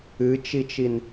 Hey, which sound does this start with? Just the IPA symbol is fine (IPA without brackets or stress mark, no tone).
ɨ